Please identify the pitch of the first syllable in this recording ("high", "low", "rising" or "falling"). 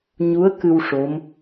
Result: rising